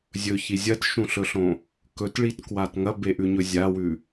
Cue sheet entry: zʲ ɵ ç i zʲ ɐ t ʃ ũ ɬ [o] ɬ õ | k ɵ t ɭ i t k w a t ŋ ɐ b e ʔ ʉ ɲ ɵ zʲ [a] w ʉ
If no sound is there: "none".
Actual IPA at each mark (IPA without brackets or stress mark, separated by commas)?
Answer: ɵ, a